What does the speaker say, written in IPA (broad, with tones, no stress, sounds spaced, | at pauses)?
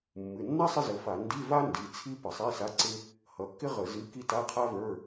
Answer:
mː ɨ˩˧˩ nː a˥ sˤ ɪ˥ z ə˩˧˩ f a˧˩˧ n d i˧˥˧ v a˥ n d i˩˧˩ t͡sʰ i˥ p ə˧˩˧ sˤ i˧˥˧ s a˧˥˧ ǀ ɪ˥ | h ʌ˩˧˩ kː ɪ˥ ʁ ə˧˩˧ z ɨ˧˥˧ k i˥ t a˧˥˧ qʰ a˥ v ə˞˧˥˧